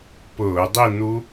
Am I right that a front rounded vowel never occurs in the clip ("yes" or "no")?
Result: yes